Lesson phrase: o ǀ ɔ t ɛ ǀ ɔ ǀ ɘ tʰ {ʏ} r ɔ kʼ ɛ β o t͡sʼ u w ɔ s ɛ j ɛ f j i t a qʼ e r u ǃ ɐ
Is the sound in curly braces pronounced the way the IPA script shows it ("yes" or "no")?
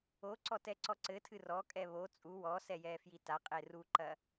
no